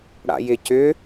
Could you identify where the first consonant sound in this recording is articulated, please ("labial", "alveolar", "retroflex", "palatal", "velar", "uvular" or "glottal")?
retroflex